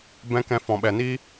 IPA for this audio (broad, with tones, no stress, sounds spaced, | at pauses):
b ɛ̃˦ k ɛ̃˧ f ɔ̃˨ ɓ ɛ˨ n iː˦